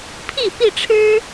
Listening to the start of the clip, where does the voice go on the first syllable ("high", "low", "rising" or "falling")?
falling